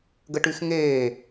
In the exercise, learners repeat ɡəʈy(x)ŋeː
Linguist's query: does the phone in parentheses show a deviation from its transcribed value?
no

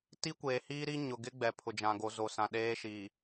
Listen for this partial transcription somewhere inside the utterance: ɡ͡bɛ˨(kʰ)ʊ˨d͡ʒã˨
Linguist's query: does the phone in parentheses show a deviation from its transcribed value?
yes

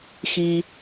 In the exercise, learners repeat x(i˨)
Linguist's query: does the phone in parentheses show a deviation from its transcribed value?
no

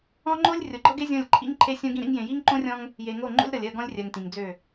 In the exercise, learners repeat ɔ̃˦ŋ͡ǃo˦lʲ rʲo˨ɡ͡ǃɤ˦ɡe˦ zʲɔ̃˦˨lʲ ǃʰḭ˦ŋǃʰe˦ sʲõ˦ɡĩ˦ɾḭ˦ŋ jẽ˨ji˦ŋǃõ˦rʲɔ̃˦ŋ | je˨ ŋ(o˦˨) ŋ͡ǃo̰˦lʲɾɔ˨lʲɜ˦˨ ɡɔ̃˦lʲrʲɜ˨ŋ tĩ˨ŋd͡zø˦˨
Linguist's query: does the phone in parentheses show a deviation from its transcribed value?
no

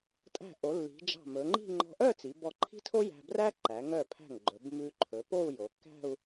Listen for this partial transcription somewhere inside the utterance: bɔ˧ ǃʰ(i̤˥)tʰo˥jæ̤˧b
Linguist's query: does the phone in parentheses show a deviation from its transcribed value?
no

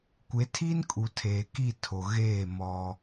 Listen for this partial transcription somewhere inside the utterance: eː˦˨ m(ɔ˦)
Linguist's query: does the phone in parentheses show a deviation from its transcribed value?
no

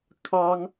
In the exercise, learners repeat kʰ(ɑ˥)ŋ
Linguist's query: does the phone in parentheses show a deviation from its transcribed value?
no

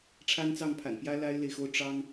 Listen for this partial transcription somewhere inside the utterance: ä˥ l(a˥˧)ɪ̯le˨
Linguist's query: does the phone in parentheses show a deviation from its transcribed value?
yes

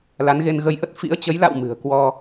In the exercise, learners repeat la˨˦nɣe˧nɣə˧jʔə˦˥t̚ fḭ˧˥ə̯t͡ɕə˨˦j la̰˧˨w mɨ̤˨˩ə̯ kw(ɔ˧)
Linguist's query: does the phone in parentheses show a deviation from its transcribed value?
no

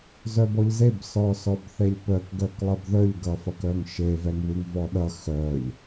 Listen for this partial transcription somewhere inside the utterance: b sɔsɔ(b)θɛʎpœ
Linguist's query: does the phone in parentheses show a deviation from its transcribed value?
no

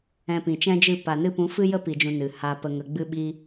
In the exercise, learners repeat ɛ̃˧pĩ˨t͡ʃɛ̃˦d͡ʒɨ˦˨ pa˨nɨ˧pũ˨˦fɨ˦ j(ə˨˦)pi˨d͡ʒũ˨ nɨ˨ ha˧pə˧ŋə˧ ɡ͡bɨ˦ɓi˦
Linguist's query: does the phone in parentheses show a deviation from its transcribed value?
yes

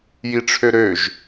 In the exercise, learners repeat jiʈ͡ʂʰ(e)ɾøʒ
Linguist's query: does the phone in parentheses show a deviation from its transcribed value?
yes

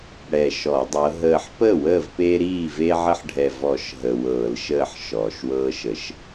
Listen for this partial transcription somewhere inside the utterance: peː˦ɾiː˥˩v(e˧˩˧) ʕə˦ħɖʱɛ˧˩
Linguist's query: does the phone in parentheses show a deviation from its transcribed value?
yes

